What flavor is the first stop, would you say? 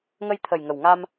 aspirated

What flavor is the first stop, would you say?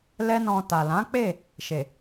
plain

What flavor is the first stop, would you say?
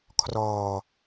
aspirated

